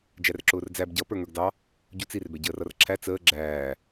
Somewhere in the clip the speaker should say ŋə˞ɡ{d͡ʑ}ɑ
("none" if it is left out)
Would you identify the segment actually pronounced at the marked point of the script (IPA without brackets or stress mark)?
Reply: d